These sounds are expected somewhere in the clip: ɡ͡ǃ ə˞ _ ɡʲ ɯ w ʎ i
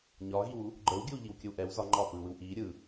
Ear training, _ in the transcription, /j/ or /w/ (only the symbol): w